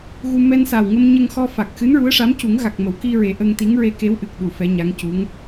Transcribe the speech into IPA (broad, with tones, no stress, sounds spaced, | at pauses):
ɣ u˧ m ɛ˧ n s a˨˩ w ŋ ə˧ m ɲ ə˧ ŋ x ɔ˧ f a˨˩ k̚ x ɨ˧˥ n ɹ u˧˥ ə̯ ʂ a˧˥ m c u˨˩˦ ŋ ɣ a˨˩ k̚ m ə˨˩˦ w k i˧ ɹ e˨˩˦ ʔ ə˧ ŋ t̪ i˧˥ ŋ ɹ e˧ k e˧˥ w ʔ ɨ˨˩ k̚ ɗ u˨˩˨ f ɛ˧˥ ɲ a˧˥ ŋ c u˧˥ ŋ